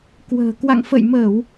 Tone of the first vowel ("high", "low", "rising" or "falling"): low